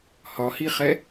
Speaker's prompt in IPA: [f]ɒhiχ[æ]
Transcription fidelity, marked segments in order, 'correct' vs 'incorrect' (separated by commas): incorrect, incorrect